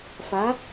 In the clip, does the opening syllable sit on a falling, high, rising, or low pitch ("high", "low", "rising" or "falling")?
rising